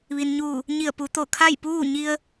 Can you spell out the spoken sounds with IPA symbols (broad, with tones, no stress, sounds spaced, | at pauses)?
ʋ i˩ n ɲ uː˧˩ | ɲ i˧˩ ə̯ p u˩˧ t̪ o˧˩ kʰ a˥˨ j p uː˥˨ ɲ i˧ ə̯